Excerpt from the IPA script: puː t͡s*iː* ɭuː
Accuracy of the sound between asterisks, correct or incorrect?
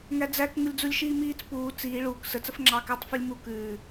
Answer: correct